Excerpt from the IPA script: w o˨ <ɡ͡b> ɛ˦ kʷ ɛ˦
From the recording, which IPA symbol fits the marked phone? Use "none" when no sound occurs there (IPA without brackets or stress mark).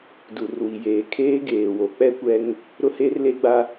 k͡p